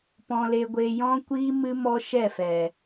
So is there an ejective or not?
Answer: no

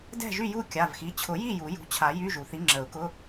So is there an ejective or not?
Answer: no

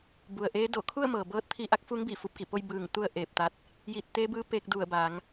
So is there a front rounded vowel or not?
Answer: no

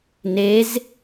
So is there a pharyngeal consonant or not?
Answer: no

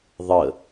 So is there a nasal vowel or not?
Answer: no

